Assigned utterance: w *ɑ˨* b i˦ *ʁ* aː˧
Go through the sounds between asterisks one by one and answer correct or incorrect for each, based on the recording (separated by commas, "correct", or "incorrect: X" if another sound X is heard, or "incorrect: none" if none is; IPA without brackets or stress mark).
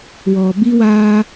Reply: incorrect: ɔ˨, incorrect: w